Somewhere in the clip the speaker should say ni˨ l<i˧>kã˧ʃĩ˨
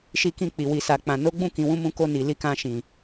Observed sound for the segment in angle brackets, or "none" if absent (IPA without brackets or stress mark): i˨˦